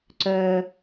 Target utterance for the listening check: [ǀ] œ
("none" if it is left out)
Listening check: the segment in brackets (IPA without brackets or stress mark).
ǀ